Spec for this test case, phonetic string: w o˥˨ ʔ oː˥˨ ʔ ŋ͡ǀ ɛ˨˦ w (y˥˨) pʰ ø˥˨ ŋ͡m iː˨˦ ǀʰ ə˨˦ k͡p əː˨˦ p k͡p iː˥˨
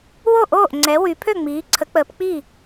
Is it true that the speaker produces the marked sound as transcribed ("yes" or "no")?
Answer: no